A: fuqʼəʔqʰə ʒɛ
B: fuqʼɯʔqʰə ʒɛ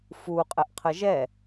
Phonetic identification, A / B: A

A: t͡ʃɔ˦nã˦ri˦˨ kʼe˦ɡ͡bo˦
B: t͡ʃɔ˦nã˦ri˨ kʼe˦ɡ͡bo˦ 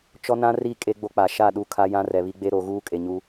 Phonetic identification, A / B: A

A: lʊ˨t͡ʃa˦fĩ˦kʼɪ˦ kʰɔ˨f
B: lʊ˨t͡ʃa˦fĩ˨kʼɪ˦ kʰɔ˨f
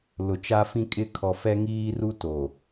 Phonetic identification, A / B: A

